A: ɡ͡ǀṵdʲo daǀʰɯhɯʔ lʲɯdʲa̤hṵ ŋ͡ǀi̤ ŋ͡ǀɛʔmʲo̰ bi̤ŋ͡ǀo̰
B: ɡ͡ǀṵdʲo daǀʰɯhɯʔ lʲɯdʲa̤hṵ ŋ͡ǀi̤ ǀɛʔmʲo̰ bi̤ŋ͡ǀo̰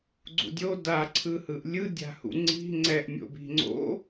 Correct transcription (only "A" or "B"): A